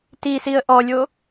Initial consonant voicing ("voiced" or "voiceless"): voiceless